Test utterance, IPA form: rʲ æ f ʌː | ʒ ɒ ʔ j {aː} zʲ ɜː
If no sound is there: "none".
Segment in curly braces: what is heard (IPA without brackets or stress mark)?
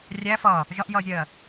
ʌː